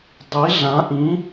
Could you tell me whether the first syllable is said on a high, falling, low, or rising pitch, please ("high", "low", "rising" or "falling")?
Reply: rising